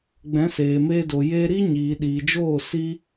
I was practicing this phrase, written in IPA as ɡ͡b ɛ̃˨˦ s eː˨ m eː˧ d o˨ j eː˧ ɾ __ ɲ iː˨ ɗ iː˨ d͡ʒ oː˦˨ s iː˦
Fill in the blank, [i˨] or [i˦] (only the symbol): i˦